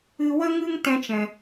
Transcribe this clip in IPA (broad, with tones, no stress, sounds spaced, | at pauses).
ɨ˧ w ə˦ ŋ ɨ˦ ŋ t ɛ̃˦ t͡ʃ ɛ̃˨